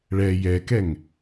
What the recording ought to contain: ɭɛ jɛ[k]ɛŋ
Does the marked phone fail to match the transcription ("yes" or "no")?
no